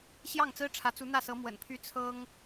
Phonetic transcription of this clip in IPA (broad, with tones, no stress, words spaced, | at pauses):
ɕjɑ˥˩ŋt͡sɹ̩˥ʈ͡ʂʰä˧˥ t͡su˧˥n̪ä˥˩sɤ˧˥ mwə̰˨˩npʰy˥ t͡sʰɤ˥ŋ